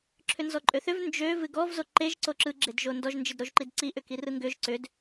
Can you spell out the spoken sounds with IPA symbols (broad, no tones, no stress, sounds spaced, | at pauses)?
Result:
ǁʰ ʏ n z ɔ ǃʼ ø θ ʏ v n d͡ʒ ø v ɨ ɡ ɔ v z o ǃ e ʒ ǀ o ǁ ɯ ɡ͡ǁ e d ʒ o n d ɔ ʒ n d͡ʒ ɨ d ɾ o ʒ ǃ i d ǀ i ʔ ʏ k i r ɯ ŋ ɡ ʏ ʒ ǀ ʏ d